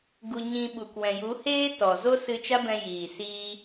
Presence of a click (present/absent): absent